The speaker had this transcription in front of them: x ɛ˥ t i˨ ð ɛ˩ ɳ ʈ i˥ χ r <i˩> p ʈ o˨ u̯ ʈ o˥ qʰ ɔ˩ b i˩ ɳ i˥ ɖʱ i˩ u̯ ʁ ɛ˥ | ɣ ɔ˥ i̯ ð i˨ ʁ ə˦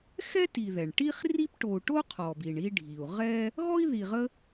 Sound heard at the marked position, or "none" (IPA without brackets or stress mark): i˥